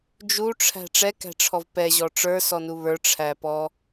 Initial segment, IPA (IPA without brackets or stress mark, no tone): d͡ʒ